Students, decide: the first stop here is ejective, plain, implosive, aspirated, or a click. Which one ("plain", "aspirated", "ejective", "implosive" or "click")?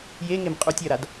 ejective